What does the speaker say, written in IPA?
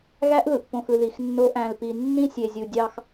ɣ æ˦ ʔ ð ɯ˨ ʔ p õ˨ x ɯ˨ ð i˨ x nː o˦ ʔ æ̃˨ l p i˨ nː ĩ˦ sʲ e˨ zʲ u˨ dʲ ɑ˦ x

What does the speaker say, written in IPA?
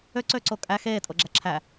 ø ǀ ø ǀ o kʼ æ x eː tʼ o ɡ͡ǁ æ ǁʰ æ

